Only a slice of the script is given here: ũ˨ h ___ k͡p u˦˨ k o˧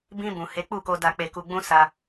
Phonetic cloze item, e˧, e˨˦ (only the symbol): e˨˦